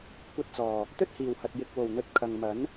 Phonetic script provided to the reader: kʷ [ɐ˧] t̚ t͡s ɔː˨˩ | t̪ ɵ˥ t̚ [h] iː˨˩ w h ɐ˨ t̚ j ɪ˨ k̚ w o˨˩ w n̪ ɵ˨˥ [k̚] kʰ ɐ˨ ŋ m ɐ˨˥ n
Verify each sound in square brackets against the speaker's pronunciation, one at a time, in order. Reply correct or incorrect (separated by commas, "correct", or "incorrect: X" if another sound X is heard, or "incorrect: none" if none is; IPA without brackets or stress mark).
correct, correct, incorrect: t̚